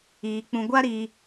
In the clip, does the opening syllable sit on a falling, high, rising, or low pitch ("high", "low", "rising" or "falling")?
low